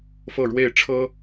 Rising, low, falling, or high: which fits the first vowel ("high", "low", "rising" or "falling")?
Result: falling